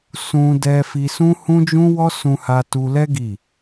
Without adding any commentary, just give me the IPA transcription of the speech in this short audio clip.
s ũ˧ d ɛ˧ f i˧ s ũ˦ h ũ˦ d͡ʒ ũ˦ w ɔ˦ s ũ˧ h a˧ t u˧ l ɛ˦ ɡ i˦˨

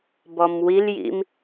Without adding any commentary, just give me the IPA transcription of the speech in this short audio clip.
b ɔ m w i l j ḭ m

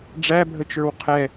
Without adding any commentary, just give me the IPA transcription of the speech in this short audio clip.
ɖ͡ʐ æ bʱ ə t͡ʃ ə˞ w qʰ ɛ

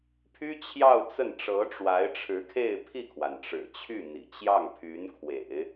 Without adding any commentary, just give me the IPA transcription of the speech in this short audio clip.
pʰ y˥ t͡ɕʰ j ɑ˥˧ ʊ̯ t͡s ə˥˩ n ʈ͡ʂ ɤ˧˥ ʈ͡ʂ w a˧˥ ɪ̯ ʈ͡ʂʰ ɻ̩˧˥ kʰ e˥˧ ɪ̯ pʰ i˥˩ kʰ w a˩ n ʈ͡ʂ ɻ̩˨˩ t͡ɕʰ y˥˩ n̪ ḭ˨˩ t͡ɕ j ɑ˥˩ ŋ pʰ y˧˥ n kʰ w ḛ˨˩˦ ɪ̯

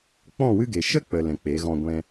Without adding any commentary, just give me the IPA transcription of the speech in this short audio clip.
k͡p ɔ̃˦˨ w ɨ˦ ɡ e˨ ʃ ə˦ k͡p ə˨ l ɛ̃˨ k͡p e˨˦ ɣ ɔ̃˧ ɡʷ ɛ̃˧

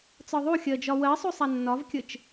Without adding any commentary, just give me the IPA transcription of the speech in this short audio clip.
t͡s ɒ ðˤ u xʲ ɜ d͡ʒ ɒ w ɜ sˤ u sˤ a nː ɒ v kʲ ə t͡ʃ

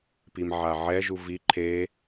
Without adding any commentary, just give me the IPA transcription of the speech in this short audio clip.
p i m ʕ a ʕ ɛ ʒ u v i ǃʰ e

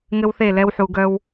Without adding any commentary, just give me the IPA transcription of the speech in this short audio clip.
ŋ ɘ˦ w θ e˦˨ l ɛ˦ w ħ u˨ ɡ œ˦ w

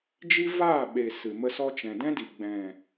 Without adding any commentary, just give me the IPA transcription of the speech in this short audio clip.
d͡ʒ i˦ v aː˦˨ ɓ e˨ s ɨ˨ m ə˧ s ɔ˧ t͡ʃ ɛ̃˨ d ɛ̃˦ d i˨ ɡ͡b ɛ̃˨

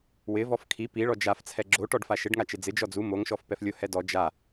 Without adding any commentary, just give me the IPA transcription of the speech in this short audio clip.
w ɪ v ɔ f kʰ i p i ɭ ɔ d͡ʒ a f t͡sʰ ɛ ɡ͡ǁ o ʈ ɔ ɖ f a ʃ ɪ ɖ ŋ a t͡ʃ ɪ d͡z ɪ d͡ʒ ɔ d͡z u m o ŋ ʃ ɔ f p ɛ f lʲ ʊ h ɛ d ɔ d͡ʒ a

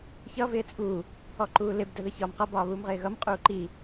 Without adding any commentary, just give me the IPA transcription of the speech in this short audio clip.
ç ʌ v ɪː t͡sʼ u | ɔ ǃ uː l ɪ b d ə ð ə ç ɒː m q ʌ b ɒː β uː m ʁ ɪː ɣ ʌ m qʼ uː ǃ i

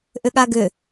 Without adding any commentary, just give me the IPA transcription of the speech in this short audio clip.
ʔ ʏ ɠ a ɡ ʏ

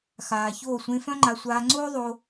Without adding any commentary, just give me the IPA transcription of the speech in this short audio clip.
x aː˨ ç oː˦˨ sʷ ẽ˧ f œ̃˦ ŋ͡ǃ a˧ sʷ aː˧ ŋ͡ǀ oː˦ ðˤ o˧

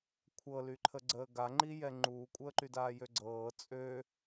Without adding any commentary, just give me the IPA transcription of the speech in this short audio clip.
kʷʰ ɤ l y ǃʰ ə ɡ͡ǀ əː ɡ a ŋ͡ǃ i j ɛ ŋ͡ǃ uː kʷʼ əː ǃ y d aː j ø ɡ͡ǀ ɤː t͡sʼ ø

